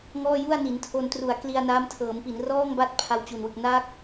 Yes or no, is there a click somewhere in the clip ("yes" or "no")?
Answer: no